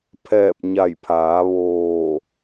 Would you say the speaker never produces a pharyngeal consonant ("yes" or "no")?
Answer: yes